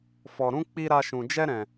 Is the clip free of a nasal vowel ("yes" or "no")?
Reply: no